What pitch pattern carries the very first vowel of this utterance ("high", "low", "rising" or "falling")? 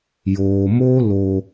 low